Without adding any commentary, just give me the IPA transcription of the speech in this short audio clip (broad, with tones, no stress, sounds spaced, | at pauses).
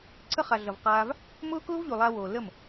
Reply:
ǀʰ ə˦ χ a˨ ɮ ʌ˨ v q aː˧ v | m ʊː˦ k ʊː˦ v ʎ u˨ lˠ a˧ w oː˨ l ə˦˨ m